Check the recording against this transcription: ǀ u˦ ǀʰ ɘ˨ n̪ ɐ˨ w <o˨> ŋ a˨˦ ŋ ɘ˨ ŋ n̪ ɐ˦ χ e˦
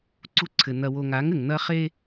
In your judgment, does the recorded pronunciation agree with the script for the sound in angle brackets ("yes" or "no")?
yes